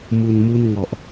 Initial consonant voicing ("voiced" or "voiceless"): voiced